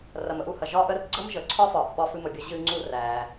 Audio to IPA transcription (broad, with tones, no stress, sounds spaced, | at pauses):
r ɐ˩ m ə˧ ʔ u˩ h ɐ˩ ʒ ɒ˧ ʔ ə˧ r ɡ͡ǀ ə˥ m ʒ ə˩ ǀʰ ɒ˥ f ɒ˩ ʔ ɓ ɒ˧ f ɨ˧ m ə˩ bʲ ɐ˧ ʑ ɨ˧ ŋ͡ǀ u˧ r æ˩